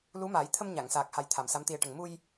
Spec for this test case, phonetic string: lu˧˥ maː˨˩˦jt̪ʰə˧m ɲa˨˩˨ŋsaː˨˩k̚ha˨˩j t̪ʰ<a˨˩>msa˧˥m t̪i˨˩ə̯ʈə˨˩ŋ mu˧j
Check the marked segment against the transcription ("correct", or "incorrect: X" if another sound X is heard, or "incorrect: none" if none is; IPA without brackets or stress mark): correct